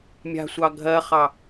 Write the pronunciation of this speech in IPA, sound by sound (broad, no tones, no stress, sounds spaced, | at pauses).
mʲ a̤ sʷ ɑ ɡʱ ɜ χ ɑ